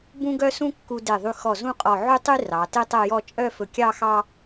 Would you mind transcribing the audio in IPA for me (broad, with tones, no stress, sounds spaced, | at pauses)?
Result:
b ũ˥ ɡ œ˥ s ũ˥ kː u˧ d e˧˩ ðˤ y˧ x ɔ˧˩ z ũ˥˧ qʼ ɔ˧˩ ʕ y˥ tˤ y˥ r ɑ˩˧ t e˥ tˤ ɛ˥˧ j ɔ˥˧ t͡ʃʼ œ˥˧ f ɵ˧˩ kʲ ɑ˥˧ x ɑ˥